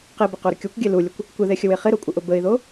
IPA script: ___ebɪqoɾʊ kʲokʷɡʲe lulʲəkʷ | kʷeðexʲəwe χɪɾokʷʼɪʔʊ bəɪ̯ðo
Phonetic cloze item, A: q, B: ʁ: A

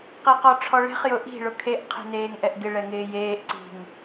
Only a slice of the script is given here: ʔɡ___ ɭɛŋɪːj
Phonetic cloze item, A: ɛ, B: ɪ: B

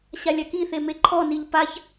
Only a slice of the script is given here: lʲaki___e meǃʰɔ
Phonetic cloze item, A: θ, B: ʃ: A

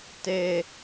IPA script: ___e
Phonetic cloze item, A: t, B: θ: A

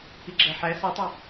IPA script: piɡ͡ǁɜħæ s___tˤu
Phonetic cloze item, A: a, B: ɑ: B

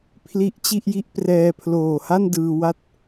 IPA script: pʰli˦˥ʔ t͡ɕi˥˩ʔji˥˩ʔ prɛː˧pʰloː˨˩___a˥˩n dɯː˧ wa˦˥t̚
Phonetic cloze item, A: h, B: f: A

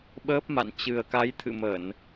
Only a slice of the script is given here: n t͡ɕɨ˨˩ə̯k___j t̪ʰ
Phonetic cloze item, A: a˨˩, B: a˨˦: B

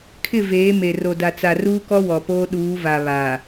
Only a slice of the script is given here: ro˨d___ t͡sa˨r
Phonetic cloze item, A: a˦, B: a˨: B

